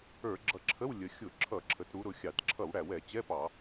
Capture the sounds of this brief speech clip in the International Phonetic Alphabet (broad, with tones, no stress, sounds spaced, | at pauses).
ə˞˧˩˧ ɡ͡ǁ ʌ˧˩˧ ǁʰ ə˧˥˧ w lʲ ə˩˧ xʲ ʊ˧˩˧ ǁʰ ʌ˧˩˧ ǁʰ ə˩˧ t ɾ u˩˧ ɾ ʊ˩˧ xʲ ɑ˧˩˧ t ǁʰ ʌ˧˩˧ w ɽ æ˩ w ɛ˧˩˧ t͡ɕ ɛ˧˥˧ p ɑ˧˩˧